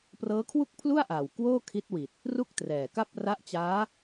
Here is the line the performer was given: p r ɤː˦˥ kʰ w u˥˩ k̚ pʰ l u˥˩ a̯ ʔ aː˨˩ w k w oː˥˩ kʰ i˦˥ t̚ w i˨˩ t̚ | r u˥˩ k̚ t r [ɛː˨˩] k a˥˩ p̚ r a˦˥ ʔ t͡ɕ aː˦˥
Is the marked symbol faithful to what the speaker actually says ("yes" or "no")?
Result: yes